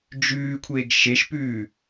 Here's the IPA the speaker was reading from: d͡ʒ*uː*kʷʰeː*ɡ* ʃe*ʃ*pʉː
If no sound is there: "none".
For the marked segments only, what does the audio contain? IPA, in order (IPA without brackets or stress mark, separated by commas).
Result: ʉː, ɡ, ʃ